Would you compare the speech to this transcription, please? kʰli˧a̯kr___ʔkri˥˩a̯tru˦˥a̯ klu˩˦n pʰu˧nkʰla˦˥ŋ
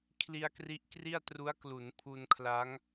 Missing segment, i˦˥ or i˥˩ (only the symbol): i˦˥